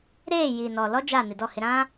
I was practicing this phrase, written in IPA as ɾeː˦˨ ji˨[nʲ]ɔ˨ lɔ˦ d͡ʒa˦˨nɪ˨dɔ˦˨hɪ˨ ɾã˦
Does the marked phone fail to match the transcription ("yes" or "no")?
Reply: yes